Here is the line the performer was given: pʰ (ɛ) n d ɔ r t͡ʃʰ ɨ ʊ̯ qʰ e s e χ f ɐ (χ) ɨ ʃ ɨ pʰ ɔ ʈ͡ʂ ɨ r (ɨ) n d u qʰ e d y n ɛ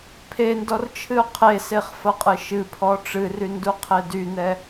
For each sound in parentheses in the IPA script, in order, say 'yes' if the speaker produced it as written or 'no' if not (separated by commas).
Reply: no, no, no